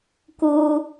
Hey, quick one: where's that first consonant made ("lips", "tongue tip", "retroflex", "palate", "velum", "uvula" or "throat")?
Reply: velum